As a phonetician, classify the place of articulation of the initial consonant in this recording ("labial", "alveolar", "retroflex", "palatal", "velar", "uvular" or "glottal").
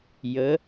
palatal